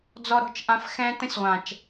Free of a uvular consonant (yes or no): no